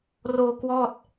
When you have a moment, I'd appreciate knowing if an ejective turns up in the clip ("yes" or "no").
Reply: no